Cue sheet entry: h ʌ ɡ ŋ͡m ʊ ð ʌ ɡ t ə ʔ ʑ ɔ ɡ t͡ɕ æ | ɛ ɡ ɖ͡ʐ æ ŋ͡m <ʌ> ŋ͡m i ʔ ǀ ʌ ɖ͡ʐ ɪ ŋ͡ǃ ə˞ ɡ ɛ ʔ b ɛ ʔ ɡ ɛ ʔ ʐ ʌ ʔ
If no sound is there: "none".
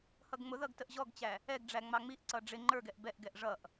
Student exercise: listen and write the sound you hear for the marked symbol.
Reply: ɑ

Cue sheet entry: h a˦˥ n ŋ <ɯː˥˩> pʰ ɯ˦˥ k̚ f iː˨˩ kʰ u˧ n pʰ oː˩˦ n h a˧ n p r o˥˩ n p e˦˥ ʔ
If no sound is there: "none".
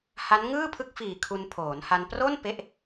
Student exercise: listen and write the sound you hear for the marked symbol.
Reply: ɯː˥˩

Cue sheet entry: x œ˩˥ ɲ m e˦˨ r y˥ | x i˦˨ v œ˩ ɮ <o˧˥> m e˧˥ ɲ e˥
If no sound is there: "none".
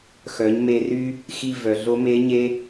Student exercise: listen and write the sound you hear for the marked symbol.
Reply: o˧˥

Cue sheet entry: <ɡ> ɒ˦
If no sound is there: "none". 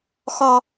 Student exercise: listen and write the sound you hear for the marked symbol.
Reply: x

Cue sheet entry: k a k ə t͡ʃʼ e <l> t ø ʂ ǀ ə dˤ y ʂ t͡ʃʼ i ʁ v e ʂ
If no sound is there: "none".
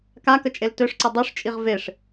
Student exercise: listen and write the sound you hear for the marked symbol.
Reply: l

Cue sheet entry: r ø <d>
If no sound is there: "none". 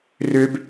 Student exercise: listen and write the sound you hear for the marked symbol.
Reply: b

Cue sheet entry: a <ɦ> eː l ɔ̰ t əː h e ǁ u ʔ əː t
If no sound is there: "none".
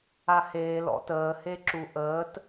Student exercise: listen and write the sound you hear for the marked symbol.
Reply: h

